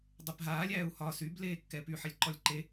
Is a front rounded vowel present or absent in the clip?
present